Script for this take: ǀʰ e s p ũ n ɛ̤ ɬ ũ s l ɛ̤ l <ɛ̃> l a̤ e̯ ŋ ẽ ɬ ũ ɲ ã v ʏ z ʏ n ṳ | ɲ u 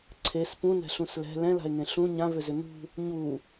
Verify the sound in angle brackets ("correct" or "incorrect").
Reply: correct